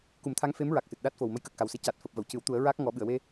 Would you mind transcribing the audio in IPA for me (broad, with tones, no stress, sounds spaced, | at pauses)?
k u˨˩˦ m t̪ʰ a˧˥ ŋ f e˧˥ m ɹ a˨˩ k̚ s ɨ˨˩ t̚ ɗ aː˦˥ t̚ f o˨˩ w m ə˧˥ j k əː˨˩ k̚ x a˨˩ w s e˧˥ c aː˨˩ t̚ f əː˨˩ p̚ v ə˨˩˨ w c ɨ˨˩˦ w t̪ u˨˩˦ ə̯ ɹ aː˦˥ k̚ ŋ ɔ˨˩˦ ɓ ɨ˨˩˨ ə̯ w e˧